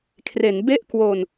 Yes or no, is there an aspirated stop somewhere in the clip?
yes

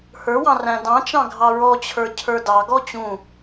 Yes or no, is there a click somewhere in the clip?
no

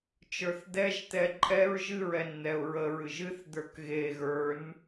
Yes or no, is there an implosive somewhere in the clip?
no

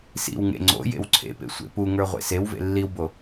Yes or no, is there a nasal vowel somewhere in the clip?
no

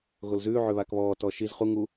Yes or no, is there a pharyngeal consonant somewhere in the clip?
yes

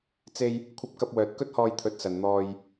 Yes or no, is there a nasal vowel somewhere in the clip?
no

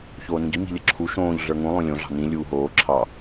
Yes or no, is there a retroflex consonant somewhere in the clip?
no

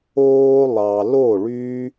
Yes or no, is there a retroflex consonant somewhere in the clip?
yes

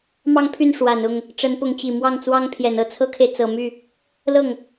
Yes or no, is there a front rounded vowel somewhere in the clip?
yes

